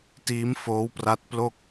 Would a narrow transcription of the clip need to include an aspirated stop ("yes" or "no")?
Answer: no